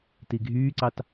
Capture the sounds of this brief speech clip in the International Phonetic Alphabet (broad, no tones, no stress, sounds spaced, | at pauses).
t i ɡʱ yː ǀ ɑ t